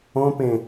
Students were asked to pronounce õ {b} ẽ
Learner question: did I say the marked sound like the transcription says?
no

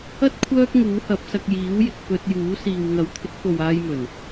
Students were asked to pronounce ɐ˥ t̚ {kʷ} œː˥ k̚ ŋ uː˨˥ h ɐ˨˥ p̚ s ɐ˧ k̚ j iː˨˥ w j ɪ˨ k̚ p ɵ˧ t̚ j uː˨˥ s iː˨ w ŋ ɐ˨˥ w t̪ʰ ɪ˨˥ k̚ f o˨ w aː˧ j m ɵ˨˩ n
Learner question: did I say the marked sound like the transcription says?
no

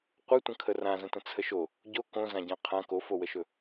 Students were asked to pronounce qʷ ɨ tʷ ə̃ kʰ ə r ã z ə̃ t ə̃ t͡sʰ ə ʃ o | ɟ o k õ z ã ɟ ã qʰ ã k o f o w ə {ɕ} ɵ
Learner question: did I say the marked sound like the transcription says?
no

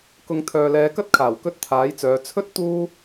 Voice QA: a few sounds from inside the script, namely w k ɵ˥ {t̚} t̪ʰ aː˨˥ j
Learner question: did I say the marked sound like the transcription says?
yes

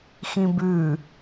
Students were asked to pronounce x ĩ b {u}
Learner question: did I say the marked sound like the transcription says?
no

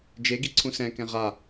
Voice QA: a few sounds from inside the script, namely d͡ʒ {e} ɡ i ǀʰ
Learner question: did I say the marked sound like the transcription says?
yes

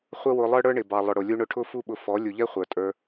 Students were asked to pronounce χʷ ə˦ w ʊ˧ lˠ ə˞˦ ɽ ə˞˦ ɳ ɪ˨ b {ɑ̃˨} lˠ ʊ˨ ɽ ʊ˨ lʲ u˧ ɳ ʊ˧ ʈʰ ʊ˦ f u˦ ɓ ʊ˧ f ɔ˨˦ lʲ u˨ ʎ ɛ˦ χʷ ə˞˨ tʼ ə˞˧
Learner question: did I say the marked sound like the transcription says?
no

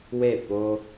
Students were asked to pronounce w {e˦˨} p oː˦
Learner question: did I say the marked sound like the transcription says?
yes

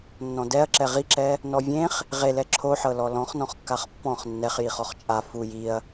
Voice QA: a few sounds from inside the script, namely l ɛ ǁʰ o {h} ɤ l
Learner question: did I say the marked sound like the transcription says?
no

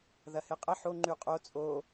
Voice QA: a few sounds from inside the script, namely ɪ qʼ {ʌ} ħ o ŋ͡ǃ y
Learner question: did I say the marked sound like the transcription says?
no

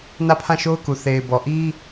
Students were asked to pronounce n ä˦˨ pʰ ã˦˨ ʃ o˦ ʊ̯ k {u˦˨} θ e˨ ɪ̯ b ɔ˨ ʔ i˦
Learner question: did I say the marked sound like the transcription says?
no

